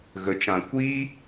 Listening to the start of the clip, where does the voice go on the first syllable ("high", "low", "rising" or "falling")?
low